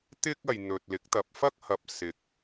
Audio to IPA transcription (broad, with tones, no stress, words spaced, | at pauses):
t̪ɪ˥k̚ɐ˨j n̪ɵ˨t̚lɪ˨˥k̚ t̪ɐ˨p̚fɐ˥k̚hɐ˨p̚ sɪ˨˥k̚